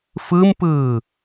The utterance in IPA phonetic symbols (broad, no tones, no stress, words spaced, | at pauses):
fɯmpɯː